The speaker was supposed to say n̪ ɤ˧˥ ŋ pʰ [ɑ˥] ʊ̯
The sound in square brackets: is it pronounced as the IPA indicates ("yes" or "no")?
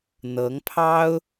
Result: yes